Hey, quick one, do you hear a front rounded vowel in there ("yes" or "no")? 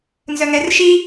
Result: yes